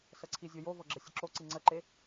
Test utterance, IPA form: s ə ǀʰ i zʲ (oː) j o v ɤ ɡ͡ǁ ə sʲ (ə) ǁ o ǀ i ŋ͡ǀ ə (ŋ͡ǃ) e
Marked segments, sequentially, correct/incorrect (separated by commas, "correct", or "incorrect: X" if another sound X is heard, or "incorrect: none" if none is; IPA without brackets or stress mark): incorrect: o, correct, incorrect: ǃ